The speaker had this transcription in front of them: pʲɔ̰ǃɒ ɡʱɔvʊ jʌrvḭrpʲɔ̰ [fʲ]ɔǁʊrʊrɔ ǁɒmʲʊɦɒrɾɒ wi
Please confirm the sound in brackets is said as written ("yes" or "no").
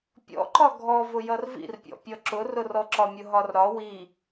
no